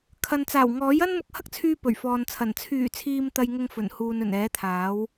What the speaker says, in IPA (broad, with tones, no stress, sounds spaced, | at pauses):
kʰ ɐ˨ n t͡s aː˨˩ w ŋ ɔː˨˥ j ɐ˥ n m ʊ˧ k̚ h ɐ˥ k̚ t͡sʰ yː˧ p ɵ˨˩ ɥ f ɔː˨ n t͡sʰ ɐ˨˩ n t͡sʰ yː˨˩ t͡sʰ iː˨ m t̪ ɐ˧ j ŋ ʊ˧ ŋ f ɵ˨˩ n h uː˨ n ɵ˨˩ n ɛː˨˥ t̪ʰ aː˨˥ w